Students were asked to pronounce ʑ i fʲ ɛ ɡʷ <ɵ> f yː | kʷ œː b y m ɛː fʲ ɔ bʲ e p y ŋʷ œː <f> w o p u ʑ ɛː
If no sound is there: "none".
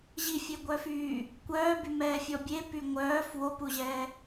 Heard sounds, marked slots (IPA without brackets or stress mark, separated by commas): œ, f